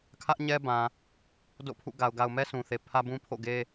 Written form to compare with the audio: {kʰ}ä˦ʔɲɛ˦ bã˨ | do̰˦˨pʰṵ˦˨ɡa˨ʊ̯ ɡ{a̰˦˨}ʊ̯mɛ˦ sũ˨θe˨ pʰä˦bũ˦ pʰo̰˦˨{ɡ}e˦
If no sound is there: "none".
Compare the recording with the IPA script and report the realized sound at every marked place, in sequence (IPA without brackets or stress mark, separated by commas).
kʰ, a˨, ɡ